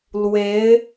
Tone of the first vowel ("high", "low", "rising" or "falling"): rising